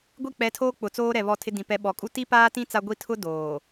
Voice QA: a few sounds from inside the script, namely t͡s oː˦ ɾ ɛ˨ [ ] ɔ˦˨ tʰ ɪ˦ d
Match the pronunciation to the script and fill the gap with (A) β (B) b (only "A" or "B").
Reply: A